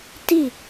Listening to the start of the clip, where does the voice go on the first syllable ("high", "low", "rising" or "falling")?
falling